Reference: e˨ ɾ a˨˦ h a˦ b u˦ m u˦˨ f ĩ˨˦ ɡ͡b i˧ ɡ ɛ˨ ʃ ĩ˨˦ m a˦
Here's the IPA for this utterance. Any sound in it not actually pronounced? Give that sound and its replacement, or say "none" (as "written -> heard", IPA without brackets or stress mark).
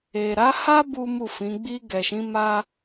none